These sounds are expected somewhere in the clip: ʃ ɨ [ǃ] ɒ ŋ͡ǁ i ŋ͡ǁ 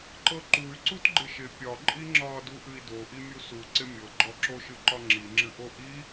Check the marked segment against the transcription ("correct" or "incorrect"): correct